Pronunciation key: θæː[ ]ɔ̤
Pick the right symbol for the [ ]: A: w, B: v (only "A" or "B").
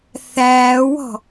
A